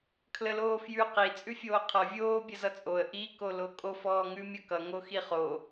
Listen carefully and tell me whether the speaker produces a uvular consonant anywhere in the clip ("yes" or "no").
yes